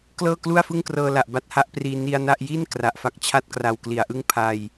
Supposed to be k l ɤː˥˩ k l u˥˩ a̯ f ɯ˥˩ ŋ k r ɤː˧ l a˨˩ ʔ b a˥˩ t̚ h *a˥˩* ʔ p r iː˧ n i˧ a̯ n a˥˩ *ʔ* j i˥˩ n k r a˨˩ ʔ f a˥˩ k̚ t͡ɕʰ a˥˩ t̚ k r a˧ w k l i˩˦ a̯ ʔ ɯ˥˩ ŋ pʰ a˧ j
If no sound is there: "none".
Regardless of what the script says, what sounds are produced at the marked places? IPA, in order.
a˥˩, ʔ

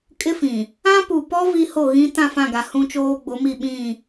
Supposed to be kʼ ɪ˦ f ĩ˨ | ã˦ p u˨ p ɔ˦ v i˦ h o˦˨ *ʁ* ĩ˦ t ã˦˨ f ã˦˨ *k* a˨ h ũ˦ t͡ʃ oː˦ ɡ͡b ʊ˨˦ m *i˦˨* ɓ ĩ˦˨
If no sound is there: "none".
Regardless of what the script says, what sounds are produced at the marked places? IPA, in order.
ɣ, ɡ, i˦˨

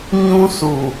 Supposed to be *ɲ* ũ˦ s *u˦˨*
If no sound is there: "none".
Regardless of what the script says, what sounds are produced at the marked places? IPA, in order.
ɲ, u˨

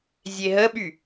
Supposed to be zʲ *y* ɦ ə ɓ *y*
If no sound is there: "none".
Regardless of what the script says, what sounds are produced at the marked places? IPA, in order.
e, y

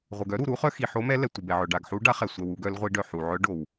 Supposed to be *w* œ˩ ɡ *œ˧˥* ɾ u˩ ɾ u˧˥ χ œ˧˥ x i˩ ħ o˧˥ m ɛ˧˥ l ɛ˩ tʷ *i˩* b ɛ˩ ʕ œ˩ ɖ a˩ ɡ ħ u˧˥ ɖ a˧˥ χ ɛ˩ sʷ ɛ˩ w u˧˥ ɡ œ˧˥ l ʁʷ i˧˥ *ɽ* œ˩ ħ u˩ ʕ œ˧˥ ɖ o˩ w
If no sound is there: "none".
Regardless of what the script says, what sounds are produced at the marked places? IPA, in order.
ʁʷ, œ˧˥, i˩, ɖ

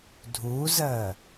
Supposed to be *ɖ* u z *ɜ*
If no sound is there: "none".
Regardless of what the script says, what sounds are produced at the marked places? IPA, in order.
dʱ, ɜ

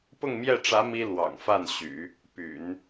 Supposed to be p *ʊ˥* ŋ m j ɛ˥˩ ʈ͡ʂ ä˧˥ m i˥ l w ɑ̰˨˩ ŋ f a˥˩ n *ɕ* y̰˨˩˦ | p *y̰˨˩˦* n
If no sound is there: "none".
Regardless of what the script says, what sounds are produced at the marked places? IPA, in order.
ʊ˥˧, ɕ, y̰˨˩˦

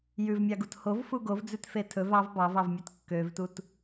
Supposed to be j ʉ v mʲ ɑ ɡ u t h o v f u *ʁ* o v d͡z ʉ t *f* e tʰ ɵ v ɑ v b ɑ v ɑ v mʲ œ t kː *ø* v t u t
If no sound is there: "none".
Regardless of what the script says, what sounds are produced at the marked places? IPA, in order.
ɡ, f, ø

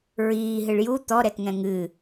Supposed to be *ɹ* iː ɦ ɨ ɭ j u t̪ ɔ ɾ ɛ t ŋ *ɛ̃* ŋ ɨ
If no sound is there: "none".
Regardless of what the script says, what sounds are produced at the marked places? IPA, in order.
ɹ, ɛ̃

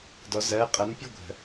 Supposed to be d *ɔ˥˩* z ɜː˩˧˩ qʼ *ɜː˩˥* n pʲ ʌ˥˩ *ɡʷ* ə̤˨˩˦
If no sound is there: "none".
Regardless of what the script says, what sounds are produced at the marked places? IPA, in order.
ɔ˩˥, ɜ˩˥, ɡʷ

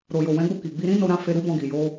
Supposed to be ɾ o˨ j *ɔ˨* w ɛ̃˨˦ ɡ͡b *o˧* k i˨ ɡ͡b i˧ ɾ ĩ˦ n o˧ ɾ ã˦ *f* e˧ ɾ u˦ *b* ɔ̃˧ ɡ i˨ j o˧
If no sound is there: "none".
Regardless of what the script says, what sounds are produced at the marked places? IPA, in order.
o˨, o˧, f, b

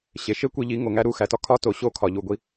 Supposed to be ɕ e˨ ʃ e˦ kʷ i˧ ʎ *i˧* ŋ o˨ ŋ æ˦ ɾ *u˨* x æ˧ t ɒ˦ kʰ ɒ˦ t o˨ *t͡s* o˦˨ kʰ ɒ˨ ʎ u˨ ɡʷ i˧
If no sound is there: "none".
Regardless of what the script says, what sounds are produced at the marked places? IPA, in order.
i˨˦, u˦˨, ɕ

